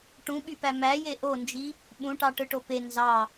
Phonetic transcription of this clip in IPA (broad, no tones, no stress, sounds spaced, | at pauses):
ʈ ũ ɓ y p æ m æ j e ʔ o n d͡ʒ i | ɓ ũ ʈ ɑ ʈ ɯ ʈ o p e n z ɑ